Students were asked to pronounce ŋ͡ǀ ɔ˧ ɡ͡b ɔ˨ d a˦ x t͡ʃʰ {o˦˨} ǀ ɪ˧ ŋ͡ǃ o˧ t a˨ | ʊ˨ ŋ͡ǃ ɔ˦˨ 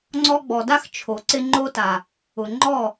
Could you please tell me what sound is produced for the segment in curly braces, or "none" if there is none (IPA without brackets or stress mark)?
o˨